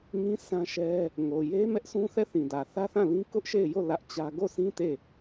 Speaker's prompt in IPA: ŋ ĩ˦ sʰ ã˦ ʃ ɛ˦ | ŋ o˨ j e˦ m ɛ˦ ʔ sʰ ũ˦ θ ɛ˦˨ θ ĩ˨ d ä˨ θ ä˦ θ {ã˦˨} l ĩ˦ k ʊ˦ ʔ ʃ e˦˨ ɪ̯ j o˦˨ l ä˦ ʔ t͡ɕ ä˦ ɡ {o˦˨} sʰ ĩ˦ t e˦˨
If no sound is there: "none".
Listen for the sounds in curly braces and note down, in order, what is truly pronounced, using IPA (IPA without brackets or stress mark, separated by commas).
ã˦˨, o˦˨